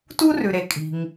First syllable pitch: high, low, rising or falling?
high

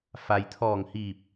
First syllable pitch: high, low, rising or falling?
low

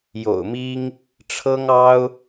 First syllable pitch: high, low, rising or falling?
low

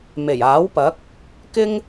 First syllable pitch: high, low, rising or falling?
low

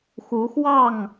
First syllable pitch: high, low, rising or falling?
rising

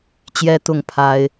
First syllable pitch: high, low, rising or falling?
high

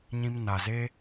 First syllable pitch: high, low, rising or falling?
high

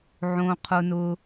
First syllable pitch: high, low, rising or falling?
high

